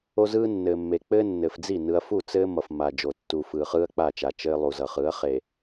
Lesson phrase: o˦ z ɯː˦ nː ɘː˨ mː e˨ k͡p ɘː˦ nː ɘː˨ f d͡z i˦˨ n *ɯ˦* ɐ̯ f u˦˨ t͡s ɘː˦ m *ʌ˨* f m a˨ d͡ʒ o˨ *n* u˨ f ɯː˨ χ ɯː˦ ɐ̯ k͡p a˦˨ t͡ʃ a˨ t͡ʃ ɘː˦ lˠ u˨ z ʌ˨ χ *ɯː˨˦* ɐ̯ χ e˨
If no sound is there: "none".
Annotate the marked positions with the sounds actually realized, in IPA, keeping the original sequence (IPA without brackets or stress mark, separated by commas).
ɯ˦, ʌ˨, tː, ɯː˨˦